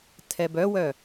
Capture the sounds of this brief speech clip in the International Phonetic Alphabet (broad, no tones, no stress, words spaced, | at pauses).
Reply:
tʰɛbœwœ